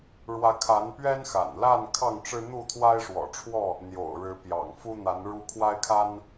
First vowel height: low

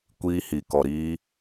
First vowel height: high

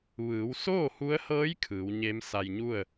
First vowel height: high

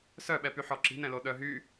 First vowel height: mid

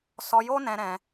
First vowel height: mid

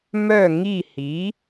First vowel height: mid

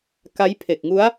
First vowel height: low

